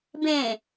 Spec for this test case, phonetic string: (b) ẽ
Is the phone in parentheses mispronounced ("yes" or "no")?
no